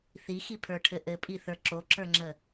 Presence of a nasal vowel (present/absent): absent